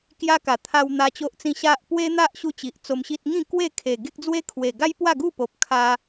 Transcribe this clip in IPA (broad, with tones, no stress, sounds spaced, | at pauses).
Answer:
k j a˦ k a˨˩ t̪ʰ a˧ w n̪ a˦ t͡ɕ o˦ ʔ t͡s ĩ˥˧ ɕ a˦ ʔ p w e˦ n̪ a˦ ʔ ɕ u˦ t͡ɕ i˨ ʔ t͡s o˧ m ɕ i˦ t̚ ŋ ĩ˥˧ k w e˥˧ kʰ e˨˩ ɡ e˦ k̚ d͡z w e˦ kʰ w e˨˩ ɡ a˦ j p w a˥˧ ɡ u˥˧ p o˨ p̚ kʰ a˧